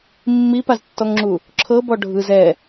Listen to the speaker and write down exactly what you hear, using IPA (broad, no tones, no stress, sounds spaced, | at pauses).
mː i p a z tː ɔ ŋ ŋ͡ǁ u | ǁʰ ɤ b ɔ ɖʱ ɯ z ɛ